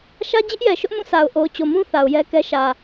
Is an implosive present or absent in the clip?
absent